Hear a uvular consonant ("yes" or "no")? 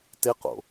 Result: yes